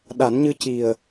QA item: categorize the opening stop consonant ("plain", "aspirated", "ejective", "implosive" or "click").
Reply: implosive